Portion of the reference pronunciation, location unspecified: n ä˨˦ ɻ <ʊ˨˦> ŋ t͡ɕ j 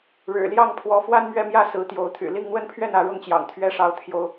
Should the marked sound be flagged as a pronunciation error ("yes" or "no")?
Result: yes